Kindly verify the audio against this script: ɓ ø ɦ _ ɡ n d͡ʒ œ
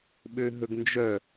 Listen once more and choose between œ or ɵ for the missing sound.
ɵ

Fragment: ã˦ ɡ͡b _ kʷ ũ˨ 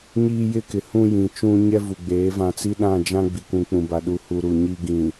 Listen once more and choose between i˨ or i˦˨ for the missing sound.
i˨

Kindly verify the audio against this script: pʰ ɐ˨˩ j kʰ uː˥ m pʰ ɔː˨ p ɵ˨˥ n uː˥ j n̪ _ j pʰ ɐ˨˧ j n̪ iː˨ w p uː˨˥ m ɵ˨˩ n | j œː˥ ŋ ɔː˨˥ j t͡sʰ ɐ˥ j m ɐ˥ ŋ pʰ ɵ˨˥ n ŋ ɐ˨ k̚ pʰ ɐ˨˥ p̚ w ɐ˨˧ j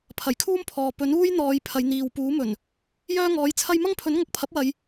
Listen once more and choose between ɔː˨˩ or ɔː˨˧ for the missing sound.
ɔː˨˧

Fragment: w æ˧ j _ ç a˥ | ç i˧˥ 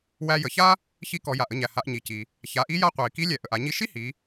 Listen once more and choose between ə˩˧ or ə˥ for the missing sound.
ə˩˧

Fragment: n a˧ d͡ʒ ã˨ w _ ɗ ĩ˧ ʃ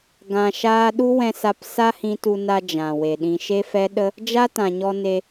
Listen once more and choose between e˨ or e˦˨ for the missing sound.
e˨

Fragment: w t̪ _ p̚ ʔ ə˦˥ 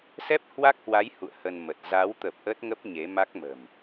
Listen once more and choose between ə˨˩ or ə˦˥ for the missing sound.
ə˨˩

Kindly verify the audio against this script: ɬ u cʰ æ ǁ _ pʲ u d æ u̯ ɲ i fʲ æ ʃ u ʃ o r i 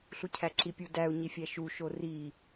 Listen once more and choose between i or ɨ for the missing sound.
i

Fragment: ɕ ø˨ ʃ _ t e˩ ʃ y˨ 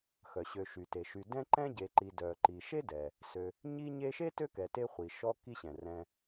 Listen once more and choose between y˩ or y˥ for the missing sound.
y˩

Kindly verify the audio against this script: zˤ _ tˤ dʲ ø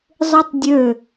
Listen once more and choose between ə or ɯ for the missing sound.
ɯ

